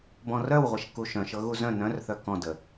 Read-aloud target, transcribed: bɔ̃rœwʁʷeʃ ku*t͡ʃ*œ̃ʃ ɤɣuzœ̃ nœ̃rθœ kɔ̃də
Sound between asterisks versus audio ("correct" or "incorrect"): incorrect